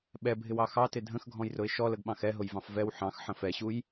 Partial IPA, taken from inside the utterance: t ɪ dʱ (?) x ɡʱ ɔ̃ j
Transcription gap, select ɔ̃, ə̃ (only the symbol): ə̃